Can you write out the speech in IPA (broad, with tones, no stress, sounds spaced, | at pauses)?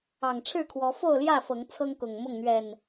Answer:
ɑ˨˩ ŋ ʈ͡ʂʰ ɻ̩˥˨ kʰ w ɔ˨˦ f o˥˨ ʊ̯ l j ä˥˨ f ɤ˨˦ ŋ t͡sʰ ɤ˦ ŋ k ʊ˨˩ ŋ m ʊ˥˨ ŋ n̪ ɥ ɛ˨˩ n